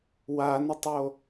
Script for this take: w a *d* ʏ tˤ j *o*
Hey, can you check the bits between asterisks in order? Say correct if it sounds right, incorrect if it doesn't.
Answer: incorrect: n, correct

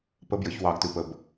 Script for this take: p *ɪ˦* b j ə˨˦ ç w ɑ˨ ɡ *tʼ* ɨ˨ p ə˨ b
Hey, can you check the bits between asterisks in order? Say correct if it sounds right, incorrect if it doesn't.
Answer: incorrect: ə˦, incorrect: t

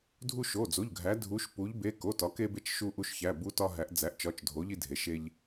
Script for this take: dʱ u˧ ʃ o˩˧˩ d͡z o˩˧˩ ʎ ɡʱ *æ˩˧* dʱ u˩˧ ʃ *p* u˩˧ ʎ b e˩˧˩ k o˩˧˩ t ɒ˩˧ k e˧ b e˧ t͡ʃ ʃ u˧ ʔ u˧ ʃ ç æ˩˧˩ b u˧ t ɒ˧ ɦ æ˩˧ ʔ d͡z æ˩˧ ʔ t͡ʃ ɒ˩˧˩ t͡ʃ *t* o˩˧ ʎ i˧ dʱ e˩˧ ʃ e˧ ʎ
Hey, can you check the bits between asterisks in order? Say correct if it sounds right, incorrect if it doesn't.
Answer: correct, correct, incorrect: dʱ

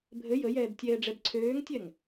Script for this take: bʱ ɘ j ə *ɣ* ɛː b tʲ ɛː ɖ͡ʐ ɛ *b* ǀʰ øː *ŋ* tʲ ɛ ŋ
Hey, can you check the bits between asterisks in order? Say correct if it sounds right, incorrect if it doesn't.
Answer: incorrect: j, correct, correct

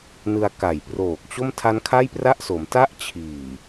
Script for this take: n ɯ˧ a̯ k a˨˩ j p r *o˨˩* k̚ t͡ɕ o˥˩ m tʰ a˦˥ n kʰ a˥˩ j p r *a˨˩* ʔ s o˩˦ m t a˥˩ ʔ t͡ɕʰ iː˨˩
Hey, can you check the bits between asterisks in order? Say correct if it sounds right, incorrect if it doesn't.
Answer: incorrect: oː˨˩, incorrect: a˥˩

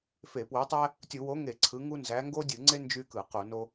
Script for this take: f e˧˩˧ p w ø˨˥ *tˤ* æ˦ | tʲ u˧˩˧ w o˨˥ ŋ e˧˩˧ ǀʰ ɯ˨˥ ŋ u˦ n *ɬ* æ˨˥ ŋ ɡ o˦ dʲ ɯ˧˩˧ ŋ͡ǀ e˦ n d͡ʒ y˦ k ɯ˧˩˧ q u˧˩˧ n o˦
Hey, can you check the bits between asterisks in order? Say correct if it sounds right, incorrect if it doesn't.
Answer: correct, incorrect: z

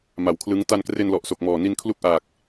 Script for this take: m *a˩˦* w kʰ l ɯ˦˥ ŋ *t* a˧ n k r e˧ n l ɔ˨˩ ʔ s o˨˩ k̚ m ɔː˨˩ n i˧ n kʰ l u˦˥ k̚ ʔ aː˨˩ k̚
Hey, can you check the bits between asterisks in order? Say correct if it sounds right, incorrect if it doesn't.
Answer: correct, correct

